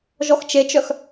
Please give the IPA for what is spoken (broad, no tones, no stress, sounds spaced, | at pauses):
ʒ ɔ x t͡ʃ e t͡ʃ œ x